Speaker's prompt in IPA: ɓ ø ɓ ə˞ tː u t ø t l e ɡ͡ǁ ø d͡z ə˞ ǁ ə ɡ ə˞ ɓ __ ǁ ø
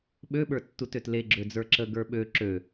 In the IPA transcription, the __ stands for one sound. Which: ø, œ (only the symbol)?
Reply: ø